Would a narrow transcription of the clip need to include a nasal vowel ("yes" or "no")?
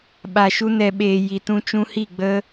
yes